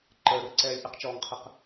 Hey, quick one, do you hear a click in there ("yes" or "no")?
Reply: yes